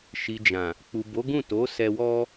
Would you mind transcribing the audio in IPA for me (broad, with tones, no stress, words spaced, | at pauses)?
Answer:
ʃi˨d͡ʒã˨ | k͡pu˨bo˨˦ɡũ˦˨to˨˦ sɛ˧wɔ˦